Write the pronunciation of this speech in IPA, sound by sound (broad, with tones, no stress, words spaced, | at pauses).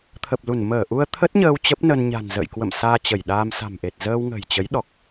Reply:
t̪ʰə˨˩p̚lu˧˩n məː˧˩ʔu˧ə̯ t̪ʰə˦˥t̚ɲəː˧w t͡ɕə˦˥p̚nə˧n ɲa̤˨˩nzə̰ː˧˨jkwə̰˧˨m saː˧t͡ɕə˧˩jɗaː˧m sa̤˨˩mʔe˨˩t̚ zəː˧wŋə̤˨˩jt͡ɕə˨˦j ɗɔ˨˩k̚